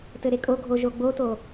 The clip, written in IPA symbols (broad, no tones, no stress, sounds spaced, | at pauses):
t ɘ ɾ e kʼ o ɡʱ o ʒ o ɡ͡b o t o